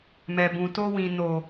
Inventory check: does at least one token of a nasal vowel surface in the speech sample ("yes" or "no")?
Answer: yes